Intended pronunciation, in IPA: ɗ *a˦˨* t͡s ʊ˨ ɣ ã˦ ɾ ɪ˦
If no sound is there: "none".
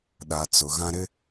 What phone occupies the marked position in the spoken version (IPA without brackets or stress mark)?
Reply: a˨